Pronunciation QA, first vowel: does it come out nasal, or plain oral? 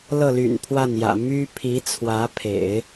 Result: oral